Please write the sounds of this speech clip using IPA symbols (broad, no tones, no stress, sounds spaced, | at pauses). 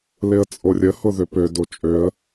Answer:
l ɪ ə̯ t͡sʼ o rʲ ə h ʊ ð ø p ø d o t͡ʃʼ ø ə̯